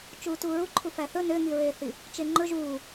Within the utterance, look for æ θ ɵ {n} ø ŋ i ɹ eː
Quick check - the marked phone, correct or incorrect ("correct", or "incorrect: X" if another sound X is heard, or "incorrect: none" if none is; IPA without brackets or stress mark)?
correct